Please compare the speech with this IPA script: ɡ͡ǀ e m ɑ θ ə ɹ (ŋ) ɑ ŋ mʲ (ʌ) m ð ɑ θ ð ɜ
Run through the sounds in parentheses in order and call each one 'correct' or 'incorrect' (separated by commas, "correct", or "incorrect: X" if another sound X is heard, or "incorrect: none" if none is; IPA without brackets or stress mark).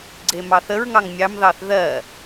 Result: correct, incorrect: ɑ